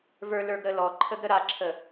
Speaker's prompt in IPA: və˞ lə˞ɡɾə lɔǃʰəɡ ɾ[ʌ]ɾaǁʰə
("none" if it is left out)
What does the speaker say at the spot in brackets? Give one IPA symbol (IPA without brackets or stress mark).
ə